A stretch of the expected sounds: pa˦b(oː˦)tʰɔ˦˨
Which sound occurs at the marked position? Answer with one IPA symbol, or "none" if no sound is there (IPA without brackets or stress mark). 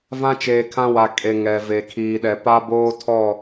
oː˦